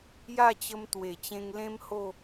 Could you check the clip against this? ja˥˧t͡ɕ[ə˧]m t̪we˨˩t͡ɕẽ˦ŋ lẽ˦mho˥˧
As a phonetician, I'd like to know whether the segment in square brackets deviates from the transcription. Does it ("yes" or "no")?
no